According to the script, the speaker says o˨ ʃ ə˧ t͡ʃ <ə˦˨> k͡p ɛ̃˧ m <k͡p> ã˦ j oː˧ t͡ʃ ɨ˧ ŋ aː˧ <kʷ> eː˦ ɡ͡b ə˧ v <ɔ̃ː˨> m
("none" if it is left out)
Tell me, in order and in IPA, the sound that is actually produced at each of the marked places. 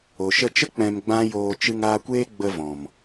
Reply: ə˦, ɡ͡b, kʷ, ɔ̃˨

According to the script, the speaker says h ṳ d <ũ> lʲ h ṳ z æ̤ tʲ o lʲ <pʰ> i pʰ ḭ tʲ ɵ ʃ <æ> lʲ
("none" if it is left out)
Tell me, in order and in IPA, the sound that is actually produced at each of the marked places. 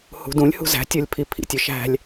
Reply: ũ, pʰ, æ̤

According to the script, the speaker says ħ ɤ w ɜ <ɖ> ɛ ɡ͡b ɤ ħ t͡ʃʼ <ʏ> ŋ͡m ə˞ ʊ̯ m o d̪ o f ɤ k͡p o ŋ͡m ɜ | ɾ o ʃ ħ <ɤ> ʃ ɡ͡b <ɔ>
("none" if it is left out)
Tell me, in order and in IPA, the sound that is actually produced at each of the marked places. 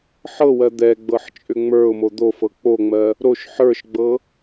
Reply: d̪, ʏ, ə˞, ɤ

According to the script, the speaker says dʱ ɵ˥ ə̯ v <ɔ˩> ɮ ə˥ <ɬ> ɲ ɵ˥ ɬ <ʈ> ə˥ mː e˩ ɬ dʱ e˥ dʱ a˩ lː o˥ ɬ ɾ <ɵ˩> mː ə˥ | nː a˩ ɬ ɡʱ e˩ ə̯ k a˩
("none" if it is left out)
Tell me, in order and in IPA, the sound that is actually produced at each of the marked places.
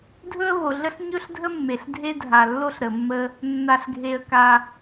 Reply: o˩, ɬ, dʱ, ə˩

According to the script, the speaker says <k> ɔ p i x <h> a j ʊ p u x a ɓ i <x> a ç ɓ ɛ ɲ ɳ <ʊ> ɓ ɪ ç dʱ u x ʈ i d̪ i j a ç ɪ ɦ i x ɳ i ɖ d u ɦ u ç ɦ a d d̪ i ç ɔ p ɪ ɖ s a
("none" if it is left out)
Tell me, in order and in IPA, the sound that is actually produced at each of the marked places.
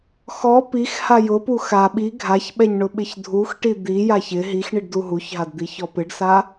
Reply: x, h, ɡʱ, ʊ

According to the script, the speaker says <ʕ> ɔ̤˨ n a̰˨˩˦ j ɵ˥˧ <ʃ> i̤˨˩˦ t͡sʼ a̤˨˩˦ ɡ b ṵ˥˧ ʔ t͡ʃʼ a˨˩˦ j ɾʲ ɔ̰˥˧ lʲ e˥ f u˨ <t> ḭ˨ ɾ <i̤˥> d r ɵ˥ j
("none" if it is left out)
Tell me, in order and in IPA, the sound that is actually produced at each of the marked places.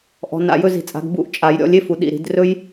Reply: ʔ, z, ɗ, i̤˨˩˦

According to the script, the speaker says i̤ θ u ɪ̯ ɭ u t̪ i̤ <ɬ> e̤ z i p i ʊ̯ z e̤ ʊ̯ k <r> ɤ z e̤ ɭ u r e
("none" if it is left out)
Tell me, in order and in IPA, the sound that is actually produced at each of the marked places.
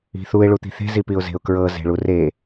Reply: θ, ɹ

